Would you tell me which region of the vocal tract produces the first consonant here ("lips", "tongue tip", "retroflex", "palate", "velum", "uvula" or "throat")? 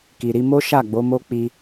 velum